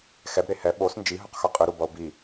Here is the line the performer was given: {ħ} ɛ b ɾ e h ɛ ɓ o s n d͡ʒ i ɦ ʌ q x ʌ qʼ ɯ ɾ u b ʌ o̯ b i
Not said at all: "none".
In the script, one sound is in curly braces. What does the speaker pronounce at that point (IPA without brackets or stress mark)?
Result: x